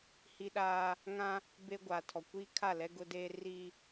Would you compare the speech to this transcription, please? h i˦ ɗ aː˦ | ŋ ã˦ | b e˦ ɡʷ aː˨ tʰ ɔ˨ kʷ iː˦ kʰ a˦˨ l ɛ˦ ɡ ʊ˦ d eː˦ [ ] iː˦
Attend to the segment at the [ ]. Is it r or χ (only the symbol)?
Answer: r